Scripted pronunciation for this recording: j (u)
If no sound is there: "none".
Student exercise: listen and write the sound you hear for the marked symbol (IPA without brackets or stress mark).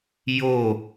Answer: o